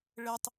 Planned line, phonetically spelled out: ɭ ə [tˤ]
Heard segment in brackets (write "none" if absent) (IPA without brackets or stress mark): tˤ